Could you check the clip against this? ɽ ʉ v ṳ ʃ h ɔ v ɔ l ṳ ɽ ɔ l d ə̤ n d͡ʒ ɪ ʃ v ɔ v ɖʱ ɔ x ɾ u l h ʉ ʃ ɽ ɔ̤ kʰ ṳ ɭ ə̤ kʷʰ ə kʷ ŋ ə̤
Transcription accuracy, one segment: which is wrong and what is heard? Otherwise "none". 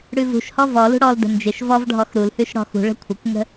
kʰ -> x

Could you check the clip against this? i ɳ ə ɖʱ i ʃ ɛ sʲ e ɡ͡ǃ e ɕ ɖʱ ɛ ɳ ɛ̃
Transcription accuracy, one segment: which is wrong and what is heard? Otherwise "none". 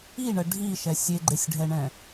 ɕ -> sʲ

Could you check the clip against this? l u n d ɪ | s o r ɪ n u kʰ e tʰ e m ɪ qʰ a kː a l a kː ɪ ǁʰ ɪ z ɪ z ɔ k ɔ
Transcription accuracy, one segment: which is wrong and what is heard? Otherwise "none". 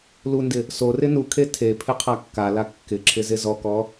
m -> pʰ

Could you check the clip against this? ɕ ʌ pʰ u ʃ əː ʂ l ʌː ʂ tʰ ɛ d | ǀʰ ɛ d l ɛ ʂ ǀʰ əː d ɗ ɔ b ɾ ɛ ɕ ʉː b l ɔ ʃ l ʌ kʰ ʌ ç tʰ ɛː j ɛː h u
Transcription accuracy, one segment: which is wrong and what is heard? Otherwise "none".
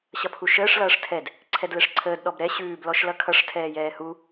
ç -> ʂ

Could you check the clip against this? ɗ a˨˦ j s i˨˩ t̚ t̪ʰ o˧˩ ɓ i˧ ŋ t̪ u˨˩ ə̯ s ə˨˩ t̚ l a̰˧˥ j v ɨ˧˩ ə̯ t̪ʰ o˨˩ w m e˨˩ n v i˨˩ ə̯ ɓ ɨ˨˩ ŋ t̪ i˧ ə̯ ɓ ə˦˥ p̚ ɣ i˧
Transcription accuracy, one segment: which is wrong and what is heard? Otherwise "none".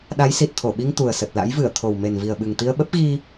none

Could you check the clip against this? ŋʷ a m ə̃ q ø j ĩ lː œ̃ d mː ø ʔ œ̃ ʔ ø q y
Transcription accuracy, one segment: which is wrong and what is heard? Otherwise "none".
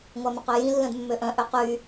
none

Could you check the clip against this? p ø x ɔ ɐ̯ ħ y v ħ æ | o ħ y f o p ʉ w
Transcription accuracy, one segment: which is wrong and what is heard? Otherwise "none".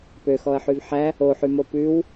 f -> m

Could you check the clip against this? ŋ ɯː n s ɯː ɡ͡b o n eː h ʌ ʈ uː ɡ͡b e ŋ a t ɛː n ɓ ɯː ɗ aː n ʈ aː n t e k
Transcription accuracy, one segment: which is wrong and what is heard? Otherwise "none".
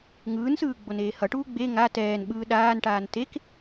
none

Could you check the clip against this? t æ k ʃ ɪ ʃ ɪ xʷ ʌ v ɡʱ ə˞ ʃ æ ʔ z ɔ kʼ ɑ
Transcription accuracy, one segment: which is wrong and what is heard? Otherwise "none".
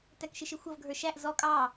none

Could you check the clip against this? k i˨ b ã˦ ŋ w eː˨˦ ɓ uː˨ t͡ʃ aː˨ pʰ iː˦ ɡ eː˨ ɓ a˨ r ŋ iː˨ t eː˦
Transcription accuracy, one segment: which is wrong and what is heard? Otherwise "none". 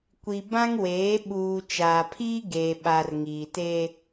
k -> kʷ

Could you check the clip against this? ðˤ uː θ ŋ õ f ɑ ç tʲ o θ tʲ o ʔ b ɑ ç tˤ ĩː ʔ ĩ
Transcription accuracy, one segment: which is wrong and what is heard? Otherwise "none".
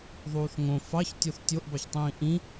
none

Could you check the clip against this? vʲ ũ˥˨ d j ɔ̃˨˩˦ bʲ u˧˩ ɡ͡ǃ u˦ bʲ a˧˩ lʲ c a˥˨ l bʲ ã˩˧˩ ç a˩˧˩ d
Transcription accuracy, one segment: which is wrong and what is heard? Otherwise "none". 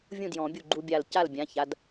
lʲ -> l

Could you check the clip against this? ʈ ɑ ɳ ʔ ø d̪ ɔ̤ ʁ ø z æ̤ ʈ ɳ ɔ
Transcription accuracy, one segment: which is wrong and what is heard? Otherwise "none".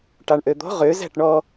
none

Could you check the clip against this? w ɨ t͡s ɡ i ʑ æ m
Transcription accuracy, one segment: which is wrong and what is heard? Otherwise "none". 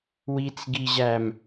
ɨ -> i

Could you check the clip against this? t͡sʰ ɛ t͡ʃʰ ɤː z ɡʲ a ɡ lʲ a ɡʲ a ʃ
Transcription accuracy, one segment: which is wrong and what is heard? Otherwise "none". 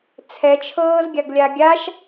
none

